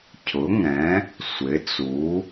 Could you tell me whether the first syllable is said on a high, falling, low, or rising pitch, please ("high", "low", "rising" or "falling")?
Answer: rising